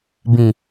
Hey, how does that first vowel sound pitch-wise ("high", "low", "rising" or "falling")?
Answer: low